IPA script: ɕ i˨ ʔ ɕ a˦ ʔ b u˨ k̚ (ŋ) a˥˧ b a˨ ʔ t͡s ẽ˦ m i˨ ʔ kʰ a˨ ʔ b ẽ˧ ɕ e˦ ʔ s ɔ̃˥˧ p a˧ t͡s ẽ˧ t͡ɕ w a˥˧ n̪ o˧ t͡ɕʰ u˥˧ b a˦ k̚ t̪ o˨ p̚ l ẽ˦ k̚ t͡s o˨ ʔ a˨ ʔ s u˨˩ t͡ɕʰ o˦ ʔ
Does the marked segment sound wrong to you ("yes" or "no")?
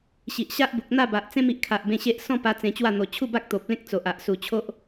yes